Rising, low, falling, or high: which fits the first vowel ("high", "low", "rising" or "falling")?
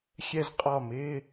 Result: falling